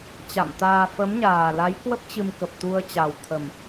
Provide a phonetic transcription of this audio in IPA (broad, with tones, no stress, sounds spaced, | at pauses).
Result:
t͡ɕ a̰˧˨ m t̪ aː˧ f ə˨˦ m ɲ aː˨˩ l a˨˦ j k w ə˦˥ p̚ t͡ɕ ɨ˧ m k ə˨˩ p̚ t̪ u˧ ə̯ t͡ɕ a˨˩ w t̪ʰ ə˨˩ m